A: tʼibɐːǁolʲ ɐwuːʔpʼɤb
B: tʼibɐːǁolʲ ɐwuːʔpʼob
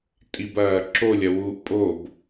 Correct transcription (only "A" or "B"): B